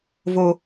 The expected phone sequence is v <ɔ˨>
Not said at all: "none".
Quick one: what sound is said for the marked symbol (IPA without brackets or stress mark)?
o˨